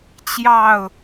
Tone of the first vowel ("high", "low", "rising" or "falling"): falling